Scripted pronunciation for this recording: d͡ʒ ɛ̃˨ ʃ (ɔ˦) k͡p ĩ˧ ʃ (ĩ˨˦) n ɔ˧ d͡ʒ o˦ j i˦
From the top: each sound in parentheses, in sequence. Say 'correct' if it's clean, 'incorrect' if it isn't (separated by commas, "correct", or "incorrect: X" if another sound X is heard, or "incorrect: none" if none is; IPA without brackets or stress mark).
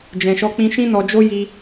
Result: incorrect: ɔ˧, incorrect: ĩ˦